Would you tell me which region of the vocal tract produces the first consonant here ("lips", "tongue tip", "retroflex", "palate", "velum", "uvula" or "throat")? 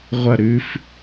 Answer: uvula